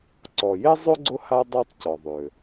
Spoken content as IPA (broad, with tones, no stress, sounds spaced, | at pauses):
ǀ ɔ˩ j e˥ zˤ ø˥ ɡ͡ǀ ʊ˦ h a˦ dˤ a˦ tˤ c ɔ˩ ðˤ ø˩